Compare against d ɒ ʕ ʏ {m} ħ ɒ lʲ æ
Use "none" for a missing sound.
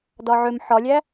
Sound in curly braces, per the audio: m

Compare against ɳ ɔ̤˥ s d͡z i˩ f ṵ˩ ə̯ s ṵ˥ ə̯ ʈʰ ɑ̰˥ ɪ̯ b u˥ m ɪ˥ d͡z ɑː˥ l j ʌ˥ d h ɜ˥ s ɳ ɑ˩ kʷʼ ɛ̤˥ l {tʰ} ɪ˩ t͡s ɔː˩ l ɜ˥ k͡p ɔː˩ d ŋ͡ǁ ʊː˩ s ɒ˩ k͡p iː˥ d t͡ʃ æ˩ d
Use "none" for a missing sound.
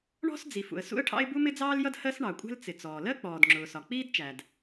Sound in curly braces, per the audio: t͡s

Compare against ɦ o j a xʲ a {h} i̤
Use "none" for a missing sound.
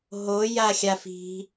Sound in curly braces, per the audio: f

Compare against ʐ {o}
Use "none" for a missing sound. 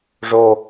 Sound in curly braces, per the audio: o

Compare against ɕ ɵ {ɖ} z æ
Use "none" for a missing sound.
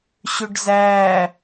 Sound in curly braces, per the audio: ɖ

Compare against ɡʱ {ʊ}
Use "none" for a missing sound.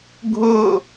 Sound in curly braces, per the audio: ʊ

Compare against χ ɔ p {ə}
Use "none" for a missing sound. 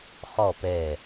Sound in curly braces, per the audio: ɛ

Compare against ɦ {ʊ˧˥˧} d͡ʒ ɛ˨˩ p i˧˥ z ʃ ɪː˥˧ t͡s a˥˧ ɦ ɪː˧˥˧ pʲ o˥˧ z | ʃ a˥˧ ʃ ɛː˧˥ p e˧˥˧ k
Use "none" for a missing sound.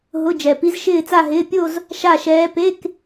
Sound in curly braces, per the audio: ʊ˧˥˧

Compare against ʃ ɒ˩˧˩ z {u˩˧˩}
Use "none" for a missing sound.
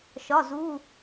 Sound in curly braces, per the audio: u˩˧˩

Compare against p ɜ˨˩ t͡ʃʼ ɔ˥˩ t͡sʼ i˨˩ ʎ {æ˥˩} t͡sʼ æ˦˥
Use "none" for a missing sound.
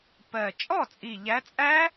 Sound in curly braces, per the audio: æ˨˦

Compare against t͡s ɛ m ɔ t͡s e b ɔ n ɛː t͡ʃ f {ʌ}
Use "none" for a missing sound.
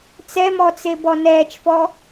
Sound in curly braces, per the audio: ɔ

